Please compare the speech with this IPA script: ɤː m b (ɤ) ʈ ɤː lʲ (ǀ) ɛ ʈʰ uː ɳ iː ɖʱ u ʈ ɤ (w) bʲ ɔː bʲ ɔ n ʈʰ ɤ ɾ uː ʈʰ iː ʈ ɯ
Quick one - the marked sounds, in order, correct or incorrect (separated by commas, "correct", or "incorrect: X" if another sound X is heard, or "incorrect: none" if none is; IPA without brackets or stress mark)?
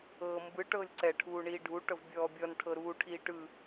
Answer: incorrect: ɯ, correct, incorrect: v